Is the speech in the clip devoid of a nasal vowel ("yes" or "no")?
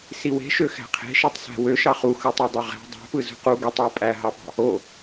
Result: yes